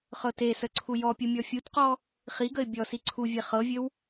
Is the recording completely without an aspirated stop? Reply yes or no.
no